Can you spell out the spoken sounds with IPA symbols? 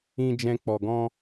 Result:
ĩ˧ d͡ʒ ɛ̃˧ k͡p ɔ˨ ɡ ɔ̃˧

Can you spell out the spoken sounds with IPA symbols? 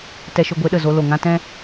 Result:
t ɛ˧ ʃ o˧ ɡʷ e˨˦ ɗ ə˨ z o˧ l o˨ ŋ ã˧ t ɛ̃˧

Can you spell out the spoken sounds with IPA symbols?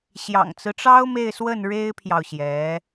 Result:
ɕ j ɑ̰˨˩ ŋ t͡s ɹ̩˦ ʈ͡ʂ ɑ˥ ʊ̯ m e˥˧ ɪ̯ s w ə˥˩ n ɻ e˥ ɪ̯ pʰ j ɑ˨ ʊ̯ ɕ j ɛ˧˥

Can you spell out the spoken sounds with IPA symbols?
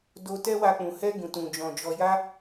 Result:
d o˧ t ɛ˦ w a˧ k͡p ũ˨ h ɛ˧ ɡ ũ˨ t ũ˨ d͡ʒ ɔ̃˨ d͡ʒ ɔ˨ j a˧

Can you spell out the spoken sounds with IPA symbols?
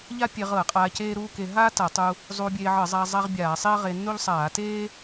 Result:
ʎ a˥ pʲ e˧ ʁ ɤ˧˩˧ ɐ̯ qʼ aː˧ c eː˥ ɾ uː˥ k e˧ ɦ aː˥ t a˧˩˧ tˤ u˧ | zˤ uː˧ bʲ eː˧ ʕ ɤ˧˩˧ zˤ aː˧ zˤ a˥ ʁ bʲ aː˧˩˧ sˤ e˥ ɐ̯ ʁ e˧ nː u˥ ʎ sˤ aː˧˩˧ t eː˥

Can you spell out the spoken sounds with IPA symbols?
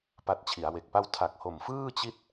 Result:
p a˦˥ t̚ t͡ɕʰ i˩˦ a̯ w e˨˩ k̚ p a˥˩ w tʰ a˨˩ k̚ h o˨˩ m f ɯː˥˩ t͡ɕ i˥˩ t̚

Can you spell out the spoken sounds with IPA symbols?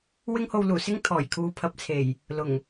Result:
w ɪ˥ ŋ h o˧ w l uː˨˩ s ɪ˥ ŋ t̪ʰ ɔː˨˩ j kʰ uː˨˧ pʰ ɐ˨ p̚ t͡sʰ e˨˩ j | l ʊ˨˩ ŋ

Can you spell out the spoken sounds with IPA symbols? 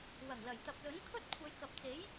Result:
w ɐ˨˩ ŋ l ɐ˨˩ j t̪ ɐ˨ p̚ l ɵ˨˥ n kʰ ɵ˥ t̚ kʷʰ ɐ˨˧ j k ɐ˨ p̚ t͡s e˨˥ j

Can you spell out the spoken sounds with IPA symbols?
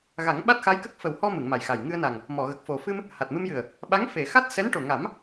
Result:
ɣ a˨˩˦ ŋ ɓ a˦˥ t̚ x a˧˥ j k ə˦˥ k̚ f ə˨˩ w h ɔ˧ m ɨ˨˩˨ ŋ m a˨˩ j x a˨˩ j ŋ ɨ˧ ə̯ n a˨˩ ŋ | m ɔ˨˩˨ ɣ ə˨˩ k̚ f o˨˩ f ɨ˧ m | h a˨˩ t̚ m ɨ˧ m j ɨ˨˩ ə̯ | ɓ a˧˥ ŋ f e˨˩˨ x a˦˥ t̚ s ɛ˧˥ n ʈ o˨˩ ŋ a˨˩˦ m

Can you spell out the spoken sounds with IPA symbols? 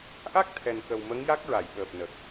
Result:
ʔ a˦˥ k̚ t̪ʰ ɛ˨˩ n k ə˨˩ w m ə˧˥ ŋ j a˦˥ k̚ ɹ a˨˩˨ j ɓ əː˨˩ p̚ n ə˨˩ k̚

